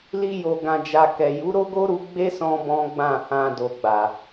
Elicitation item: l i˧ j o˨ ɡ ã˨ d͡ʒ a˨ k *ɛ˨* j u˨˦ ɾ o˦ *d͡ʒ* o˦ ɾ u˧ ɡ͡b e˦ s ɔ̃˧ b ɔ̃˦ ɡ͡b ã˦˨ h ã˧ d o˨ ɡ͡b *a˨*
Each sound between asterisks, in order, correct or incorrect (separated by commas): correct, incorrect, correct